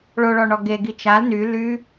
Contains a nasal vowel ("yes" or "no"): no